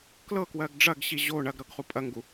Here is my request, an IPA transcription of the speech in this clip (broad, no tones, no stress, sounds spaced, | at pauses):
k l ɤ k w ɜ ɡ ɖ͡ʐ ɐ ɡ ɕ i ʑ o ɳ ɐ ɡ ɾ ɤ ɡ χ u pʼ ɐ ŋ ɡ u